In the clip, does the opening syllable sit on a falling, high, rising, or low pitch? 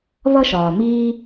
high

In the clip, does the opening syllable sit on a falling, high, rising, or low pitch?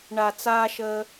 low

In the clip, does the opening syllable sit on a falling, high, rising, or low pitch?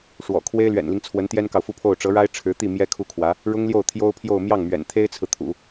low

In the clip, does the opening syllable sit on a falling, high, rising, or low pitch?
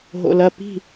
low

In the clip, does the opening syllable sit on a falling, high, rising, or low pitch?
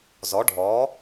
rising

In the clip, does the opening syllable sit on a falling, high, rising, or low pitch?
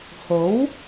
rising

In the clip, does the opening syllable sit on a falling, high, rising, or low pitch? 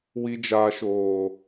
high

